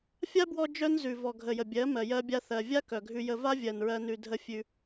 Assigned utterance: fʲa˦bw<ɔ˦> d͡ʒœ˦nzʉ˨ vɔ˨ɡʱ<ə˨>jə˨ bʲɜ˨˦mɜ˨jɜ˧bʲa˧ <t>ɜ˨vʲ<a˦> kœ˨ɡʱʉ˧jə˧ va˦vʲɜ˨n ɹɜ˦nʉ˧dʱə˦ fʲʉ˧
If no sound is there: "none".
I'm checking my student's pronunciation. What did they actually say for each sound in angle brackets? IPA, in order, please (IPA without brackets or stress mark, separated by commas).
ɔ˧, ə˨, θ, a˦